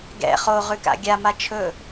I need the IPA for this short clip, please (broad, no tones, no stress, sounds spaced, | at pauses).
ɡ ɛ̰ χ o ʁ ʉ k a̰ ɡʲ a m a t͡ʃʰ ɵ